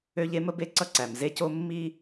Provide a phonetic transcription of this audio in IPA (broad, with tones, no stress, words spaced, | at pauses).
ø˦ʎ e˦mə˦be˦ ǀʌ˦ǀæ˨m ze˦co˦ mːi˦